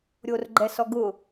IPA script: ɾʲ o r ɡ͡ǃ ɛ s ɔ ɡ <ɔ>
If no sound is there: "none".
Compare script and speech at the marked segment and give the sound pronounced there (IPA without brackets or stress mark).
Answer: ʊ